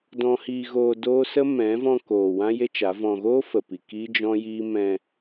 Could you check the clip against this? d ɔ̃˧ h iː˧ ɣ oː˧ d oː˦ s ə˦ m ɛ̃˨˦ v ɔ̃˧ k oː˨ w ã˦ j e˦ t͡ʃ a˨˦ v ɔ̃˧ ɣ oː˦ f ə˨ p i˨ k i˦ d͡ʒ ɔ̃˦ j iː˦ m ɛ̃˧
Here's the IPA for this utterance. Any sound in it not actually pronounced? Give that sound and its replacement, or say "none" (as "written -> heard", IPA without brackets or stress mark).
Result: none